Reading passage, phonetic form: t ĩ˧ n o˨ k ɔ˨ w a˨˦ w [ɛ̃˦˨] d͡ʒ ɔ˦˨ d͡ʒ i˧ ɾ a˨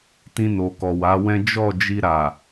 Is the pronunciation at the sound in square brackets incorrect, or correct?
incorrect: ɛ̃˦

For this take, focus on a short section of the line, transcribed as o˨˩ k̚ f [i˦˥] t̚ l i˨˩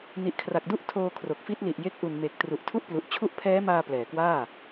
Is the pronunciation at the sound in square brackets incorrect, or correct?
correct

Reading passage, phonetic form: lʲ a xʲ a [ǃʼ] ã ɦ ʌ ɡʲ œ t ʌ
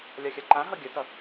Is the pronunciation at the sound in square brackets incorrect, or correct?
incorrect: ǃ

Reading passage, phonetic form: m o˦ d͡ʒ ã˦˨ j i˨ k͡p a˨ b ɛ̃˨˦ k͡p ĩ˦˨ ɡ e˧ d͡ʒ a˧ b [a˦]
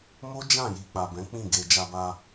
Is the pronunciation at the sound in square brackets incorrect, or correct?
incorrect: a˧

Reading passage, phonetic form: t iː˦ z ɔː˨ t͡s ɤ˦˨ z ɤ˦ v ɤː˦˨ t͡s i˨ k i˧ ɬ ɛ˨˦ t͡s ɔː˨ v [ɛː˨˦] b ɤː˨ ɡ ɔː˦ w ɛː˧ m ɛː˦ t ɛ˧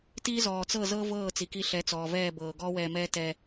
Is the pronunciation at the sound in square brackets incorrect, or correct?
incorrect: ɛː˦˨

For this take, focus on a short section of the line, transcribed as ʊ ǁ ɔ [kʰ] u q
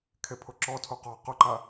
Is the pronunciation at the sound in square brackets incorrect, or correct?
incorrect: tʰ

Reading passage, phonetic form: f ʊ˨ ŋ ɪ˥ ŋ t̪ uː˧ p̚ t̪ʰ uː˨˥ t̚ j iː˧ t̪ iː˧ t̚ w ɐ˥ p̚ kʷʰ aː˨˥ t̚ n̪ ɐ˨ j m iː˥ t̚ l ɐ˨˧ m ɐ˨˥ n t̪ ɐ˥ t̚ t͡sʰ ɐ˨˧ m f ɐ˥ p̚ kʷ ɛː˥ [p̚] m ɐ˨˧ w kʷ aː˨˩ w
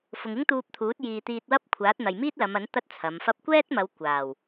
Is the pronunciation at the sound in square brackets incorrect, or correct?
incorrect: t̚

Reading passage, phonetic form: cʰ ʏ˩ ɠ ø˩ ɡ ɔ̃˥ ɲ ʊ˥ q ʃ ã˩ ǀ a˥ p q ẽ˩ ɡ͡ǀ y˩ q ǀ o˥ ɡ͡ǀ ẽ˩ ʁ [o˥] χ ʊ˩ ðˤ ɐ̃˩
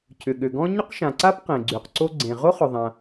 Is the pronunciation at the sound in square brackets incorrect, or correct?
correct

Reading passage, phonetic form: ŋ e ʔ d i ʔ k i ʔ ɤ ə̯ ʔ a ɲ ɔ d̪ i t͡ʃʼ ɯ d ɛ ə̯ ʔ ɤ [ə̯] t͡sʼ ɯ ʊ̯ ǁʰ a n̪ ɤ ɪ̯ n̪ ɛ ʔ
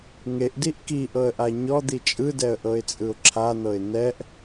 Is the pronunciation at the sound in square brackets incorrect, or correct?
incorrect: ɪ̯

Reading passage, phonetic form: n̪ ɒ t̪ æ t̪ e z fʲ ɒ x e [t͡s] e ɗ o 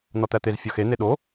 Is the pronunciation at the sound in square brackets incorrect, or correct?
incorrect: n̪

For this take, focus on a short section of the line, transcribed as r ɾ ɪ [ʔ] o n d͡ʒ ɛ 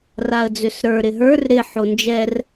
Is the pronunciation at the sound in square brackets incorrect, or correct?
incorrect: ħ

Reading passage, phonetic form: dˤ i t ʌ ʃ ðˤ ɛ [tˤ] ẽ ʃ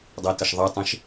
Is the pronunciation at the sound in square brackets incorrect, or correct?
correct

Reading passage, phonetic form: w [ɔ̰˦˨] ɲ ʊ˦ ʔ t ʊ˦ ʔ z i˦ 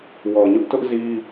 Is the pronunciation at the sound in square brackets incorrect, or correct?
incorrect: ɔ˨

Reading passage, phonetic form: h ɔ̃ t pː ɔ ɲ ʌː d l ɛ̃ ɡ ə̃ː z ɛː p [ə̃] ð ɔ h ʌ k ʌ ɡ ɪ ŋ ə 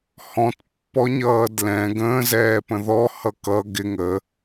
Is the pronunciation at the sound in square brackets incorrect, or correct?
correct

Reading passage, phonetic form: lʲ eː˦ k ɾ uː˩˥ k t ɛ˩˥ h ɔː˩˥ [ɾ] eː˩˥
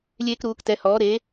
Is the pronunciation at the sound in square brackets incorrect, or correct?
correct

